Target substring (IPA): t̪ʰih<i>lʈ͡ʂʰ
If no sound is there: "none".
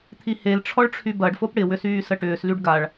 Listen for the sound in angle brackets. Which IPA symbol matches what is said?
e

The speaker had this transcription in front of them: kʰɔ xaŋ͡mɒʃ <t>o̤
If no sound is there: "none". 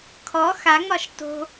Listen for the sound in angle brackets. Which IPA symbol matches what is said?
t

